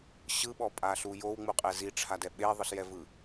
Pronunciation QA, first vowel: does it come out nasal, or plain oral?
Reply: oral